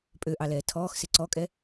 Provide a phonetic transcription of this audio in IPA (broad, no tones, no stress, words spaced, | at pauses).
pʼøʔɑlɛː tʰɔːxsɪ ǀɔkʼɛ